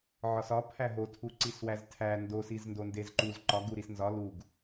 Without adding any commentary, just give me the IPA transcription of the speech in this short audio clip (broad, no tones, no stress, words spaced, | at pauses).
ʕɒsɒ pʰæɦotʰu ǀiswæztʰæ ndosiz ndondezǃuz ǃɒ ɡuɾisnzɒ luɡ